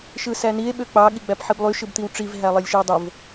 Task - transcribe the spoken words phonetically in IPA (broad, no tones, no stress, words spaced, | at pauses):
ʃɯsænie̯ ɓøk͡pɑ ɠiɡ͡bæpħiblˠy ʃɯbt̪iwʈ͡ʂiv ɦælˠelʲʃiwdˤov